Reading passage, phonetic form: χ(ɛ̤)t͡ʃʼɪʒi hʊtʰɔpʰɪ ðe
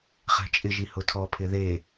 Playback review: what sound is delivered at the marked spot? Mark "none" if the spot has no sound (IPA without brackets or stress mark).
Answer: ɛ̤